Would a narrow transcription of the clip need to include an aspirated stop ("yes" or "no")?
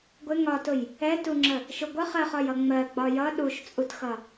no